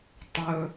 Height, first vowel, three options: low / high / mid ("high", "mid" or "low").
mid